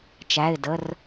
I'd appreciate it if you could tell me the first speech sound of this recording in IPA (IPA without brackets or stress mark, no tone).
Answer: t͡ʃ